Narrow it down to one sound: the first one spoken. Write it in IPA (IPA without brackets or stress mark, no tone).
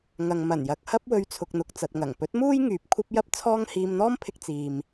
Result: ŋ